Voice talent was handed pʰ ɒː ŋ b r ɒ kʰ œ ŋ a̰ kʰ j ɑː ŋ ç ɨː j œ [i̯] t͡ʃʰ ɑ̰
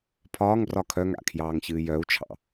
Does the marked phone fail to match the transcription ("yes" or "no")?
yes